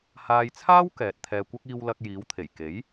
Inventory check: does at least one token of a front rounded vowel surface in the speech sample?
no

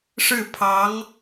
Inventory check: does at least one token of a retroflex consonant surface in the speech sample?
yes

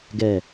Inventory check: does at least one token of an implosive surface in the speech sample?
no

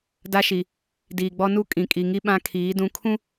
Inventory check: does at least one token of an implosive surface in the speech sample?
yes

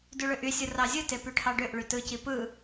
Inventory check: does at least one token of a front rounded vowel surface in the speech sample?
yes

